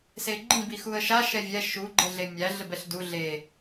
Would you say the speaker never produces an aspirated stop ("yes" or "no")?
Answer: yes